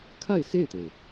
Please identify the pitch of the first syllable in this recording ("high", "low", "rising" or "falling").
falling